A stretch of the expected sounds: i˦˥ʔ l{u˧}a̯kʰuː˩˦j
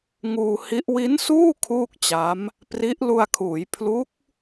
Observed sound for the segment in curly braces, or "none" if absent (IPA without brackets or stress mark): u˧